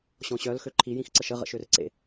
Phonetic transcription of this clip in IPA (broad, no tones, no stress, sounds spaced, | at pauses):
ɕ ɔ̃ ɕ œ l x ø ǃʰ i j ĩ x ǀ ə ʃ ə ʁ ə̰ ʃ ø r ǀ ḛ